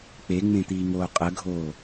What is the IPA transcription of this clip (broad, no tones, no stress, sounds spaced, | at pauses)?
k͡p e ŋ͡m ẽ t̪ iː ŋ oː qʼ ə ɡʱ oː